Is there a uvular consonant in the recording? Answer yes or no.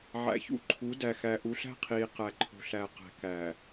yes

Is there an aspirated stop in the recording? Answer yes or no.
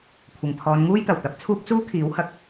yes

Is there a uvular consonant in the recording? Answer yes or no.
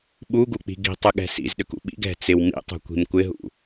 no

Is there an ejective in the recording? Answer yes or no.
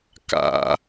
no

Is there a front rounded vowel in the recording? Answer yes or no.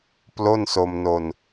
no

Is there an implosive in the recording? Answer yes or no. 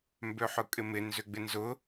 no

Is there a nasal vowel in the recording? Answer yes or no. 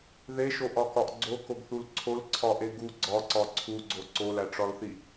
no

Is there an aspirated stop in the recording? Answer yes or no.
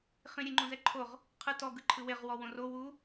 yes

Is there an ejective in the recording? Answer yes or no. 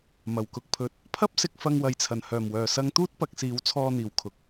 no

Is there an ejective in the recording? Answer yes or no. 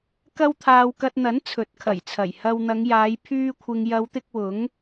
no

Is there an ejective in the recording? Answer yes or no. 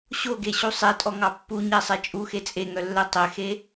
yes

